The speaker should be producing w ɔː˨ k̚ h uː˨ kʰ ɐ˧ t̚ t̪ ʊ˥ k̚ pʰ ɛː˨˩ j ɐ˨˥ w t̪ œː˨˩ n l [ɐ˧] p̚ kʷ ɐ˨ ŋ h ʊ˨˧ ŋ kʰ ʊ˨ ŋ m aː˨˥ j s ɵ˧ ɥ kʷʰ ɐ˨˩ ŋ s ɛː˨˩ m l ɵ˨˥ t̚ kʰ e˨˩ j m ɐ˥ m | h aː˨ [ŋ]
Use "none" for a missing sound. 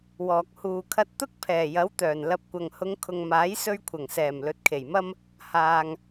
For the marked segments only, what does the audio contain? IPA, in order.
ɐ˧, ŋ

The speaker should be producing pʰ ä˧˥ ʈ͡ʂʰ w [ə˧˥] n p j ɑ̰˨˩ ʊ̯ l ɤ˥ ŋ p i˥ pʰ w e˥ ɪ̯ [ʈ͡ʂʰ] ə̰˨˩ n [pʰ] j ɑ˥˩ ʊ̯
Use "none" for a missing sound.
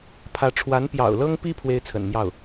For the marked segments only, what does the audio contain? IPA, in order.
a˧˥, t͡sʰ, m

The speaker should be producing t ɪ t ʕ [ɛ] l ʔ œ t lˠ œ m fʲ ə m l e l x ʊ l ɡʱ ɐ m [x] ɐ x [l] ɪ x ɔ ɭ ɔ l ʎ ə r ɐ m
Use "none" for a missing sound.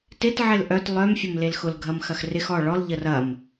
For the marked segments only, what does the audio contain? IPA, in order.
ɪ, x, r

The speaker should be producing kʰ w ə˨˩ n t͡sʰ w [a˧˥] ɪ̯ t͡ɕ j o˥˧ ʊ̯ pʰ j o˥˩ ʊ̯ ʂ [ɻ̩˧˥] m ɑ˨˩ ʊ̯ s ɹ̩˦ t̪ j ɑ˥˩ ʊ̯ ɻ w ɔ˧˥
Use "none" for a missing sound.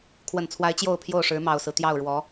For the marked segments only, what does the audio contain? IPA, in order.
a˧˥, ɻ̩˧˥

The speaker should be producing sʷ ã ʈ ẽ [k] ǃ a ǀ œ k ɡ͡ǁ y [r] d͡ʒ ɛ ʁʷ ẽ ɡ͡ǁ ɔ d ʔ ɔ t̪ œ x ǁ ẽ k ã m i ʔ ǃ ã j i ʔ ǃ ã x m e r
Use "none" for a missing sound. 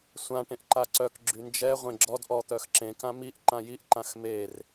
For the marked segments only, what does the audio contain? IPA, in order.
ʔ, n

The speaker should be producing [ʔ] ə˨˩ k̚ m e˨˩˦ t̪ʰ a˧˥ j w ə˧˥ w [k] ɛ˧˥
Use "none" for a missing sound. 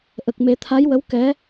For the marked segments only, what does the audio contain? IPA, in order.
ʔ, k

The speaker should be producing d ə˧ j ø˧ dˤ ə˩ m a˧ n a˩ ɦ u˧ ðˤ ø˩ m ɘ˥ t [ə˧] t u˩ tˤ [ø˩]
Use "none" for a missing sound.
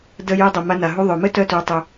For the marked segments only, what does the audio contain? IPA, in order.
œ˧, ø˩

